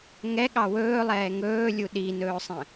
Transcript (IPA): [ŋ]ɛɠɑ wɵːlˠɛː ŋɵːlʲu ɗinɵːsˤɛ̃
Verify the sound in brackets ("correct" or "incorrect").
correct